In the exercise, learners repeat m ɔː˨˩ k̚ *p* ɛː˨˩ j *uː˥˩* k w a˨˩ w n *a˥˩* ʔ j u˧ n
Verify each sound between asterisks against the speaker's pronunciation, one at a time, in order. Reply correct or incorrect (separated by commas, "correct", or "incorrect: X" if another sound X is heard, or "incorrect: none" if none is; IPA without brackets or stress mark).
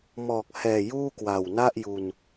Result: incorrect: h, correct, correct